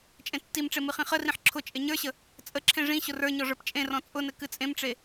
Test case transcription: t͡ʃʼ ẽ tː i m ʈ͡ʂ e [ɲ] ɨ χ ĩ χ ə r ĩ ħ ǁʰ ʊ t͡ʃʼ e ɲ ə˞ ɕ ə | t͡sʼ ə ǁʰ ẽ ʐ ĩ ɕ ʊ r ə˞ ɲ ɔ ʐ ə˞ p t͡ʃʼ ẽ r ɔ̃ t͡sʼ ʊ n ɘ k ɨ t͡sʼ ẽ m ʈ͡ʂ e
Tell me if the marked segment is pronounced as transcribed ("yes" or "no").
no